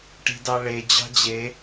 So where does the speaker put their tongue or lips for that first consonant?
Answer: retroflex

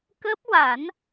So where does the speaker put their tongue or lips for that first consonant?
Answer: velum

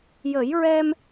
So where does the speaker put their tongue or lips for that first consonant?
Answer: palate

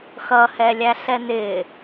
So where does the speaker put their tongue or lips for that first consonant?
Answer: velum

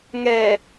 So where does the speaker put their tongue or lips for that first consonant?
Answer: velum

